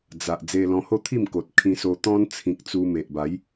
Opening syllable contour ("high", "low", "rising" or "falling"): low